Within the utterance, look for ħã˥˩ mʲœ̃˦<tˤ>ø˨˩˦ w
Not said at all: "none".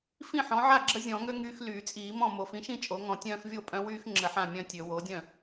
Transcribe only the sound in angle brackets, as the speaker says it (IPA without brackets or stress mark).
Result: tʲ